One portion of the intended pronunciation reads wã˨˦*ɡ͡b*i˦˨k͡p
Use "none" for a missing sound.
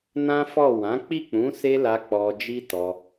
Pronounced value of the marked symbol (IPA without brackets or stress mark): k͡p